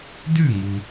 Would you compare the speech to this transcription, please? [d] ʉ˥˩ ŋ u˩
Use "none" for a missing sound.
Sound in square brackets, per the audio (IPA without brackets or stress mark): d